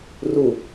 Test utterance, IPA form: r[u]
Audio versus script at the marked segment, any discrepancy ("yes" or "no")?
no